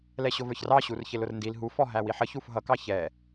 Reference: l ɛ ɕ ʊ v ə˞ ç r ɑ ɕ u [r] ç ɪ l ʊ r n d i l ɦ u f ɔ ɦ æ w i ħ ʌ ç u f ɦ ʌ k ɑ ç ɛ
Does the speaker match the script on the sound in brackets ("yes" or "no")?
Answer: yes